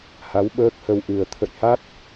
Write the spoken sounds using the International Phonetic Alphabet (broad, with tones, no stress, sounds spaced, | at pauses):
h a˨˦ w ɓ əː˦˥ k̚ h ə˧ w ʔ ɨ˨˩ ə̯ t̪ʰ ə̰˧˨ j h a˦˥ t̚